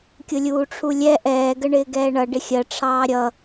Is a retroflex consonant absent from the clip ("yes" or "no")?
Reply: no